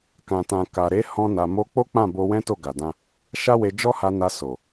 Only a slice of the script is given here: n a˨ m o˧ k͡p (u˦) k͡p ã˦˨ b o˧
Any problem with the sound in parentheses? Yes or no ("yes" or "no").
yes